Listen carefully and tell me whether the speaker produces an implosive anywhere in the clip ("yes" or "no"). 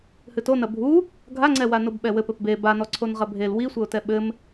yes